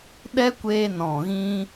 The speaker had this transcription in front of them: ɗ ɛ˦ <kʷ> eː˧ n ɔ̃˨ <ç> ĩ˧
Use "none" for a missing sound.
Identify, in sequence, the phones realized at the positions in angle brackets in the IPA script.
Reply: kʷ, ɣ

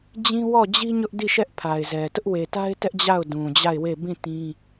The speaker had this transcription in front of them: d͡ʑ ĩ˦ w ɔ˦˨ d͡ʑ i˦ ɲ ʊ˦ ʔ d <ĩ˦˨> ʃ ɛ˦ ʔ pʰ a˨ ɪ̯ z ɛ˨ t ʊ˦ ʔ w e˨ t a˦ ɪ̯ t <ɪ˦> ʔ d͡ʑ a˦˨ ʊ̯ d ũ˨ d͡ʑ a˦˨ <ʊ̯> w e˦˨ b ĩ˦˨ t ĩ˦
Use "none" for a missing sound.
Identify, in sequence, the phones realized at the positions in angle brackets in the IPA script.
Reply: i˦˨, ɛ˦, ɪ̯

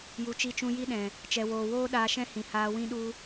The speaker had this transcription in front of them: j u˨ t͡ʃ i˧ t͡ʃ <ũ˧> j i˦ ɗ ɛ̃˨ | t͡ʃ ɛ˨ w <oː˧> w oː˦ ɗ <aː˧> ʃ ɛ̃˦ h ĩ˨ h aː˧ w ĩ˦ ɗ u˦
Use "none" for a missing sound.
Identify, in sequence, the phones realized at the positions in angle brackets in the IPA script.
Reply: ũ˧, oː˨, aː˧

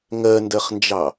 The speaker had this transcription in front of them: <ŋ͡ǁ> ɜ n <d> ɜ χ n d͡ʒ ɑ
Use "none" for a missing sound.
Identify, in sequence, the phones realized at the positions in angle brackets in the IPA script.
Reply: ŋ, d

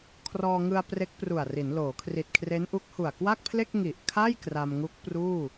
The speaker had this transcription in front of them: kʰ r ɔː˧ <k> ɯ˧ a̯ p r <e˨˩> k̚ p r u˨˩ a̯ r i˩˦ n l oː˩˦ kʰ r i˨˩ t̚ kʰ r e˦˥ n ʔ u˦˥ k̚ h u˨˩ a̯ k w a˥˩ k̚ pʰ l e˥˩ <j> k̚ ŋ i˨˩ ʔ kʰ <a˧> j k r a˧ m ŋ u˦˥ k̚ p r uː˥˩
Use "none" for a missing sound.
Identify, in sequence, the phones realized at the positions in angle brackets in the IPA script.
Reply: ŋ, e˦˥, none, a˥˩

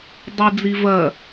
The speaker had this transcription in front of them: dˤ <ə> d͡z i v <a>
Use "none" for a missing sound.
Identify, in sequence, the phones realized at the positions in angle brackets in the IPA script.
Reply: ə, ɐ

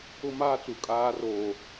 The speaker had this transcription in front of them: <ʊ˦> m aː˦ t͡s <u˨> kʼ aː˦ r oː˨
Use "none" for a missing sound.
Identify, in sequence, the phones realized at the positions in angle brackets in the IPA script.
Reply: ʊ˦, u˨

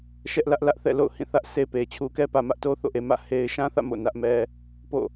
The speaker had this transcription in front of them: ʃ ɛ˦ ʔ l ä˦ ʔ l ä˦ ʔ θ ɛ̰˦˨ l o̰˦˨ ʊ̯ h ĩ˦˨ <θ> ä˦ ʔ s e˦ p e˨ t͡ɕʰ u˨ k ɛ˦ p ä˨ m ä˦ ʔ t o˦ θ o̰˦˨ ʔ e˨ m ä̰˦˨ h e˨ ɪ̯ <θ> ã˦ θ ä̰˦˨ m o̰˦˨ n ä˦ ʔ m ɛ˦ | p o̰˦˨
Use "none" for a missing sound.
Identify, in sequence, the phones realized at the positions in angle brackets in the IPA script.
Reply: θ, ʃ

